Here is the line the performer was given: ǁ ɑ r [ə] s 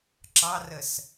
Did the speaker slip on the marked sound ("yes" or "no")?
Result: no